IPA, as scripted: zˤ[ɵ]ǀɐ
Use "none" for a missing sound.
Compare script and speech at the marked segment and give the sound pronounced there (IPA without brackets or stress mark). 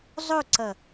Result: ɵ